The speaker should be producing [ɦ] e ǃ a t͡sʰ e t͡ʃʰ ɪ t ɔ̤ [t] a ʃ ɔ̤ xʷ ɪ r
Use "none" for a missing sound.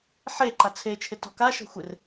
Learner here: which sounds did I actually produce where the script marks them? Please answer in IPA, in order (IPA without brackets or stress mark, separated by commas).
ħ, k